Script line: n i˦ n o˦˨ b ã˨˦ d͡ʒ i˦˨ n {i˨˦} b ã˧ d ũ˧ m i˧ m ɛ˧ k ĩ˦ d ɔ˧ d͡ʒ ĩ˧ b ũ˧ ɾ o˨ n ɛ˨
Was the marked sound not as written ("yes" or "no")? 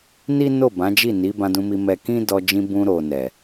no